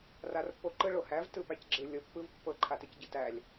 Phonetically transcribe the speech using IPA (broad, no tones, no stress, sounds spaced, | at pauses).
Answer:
r a r pː o ǃ ɯ ɭ o h æ v t ɯ p æ c ɡ͡ǁ ɯ lʲ ɤ pː ɯ v pː ɤ ǃʰ a t ɯ c ɟ ɯ t æ lʲ